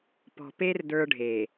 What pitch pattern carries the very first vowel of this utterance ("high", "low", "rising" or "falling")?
low